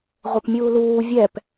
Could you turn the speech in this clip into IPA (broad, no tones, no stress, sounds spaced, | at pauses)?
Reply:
ʁʷ e p mʲ uː l uː vʲ ɛ p